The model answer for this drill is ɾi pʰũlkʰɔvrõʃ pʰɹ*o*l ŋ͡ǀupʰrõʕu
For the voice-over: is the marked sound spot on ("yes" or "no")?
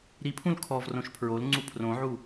yes